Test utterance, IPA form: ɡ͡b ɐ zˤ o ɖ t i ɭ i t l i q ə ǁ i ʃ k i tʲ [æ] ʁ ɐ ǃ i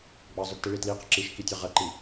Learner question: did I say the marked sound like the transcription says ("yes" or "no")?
no